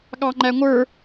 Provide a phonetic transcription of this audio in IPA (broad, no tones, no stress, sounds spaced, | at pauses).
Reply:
ɠ ɑ ŋ͡ǃ æ ŋʷ ə˞